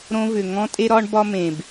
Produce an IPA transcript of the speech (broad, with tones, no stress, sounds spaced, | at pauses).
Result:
ɾ õ˧ v ʏ˨ ŋ ɔ̃˦ tʼ e˦ ɾ ɒ˦ ɳ b ɒ˦ m ẽ˨ b